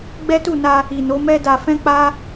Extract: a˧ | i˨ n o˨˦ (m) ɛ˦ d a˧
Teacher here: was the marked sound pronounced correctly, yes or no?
yes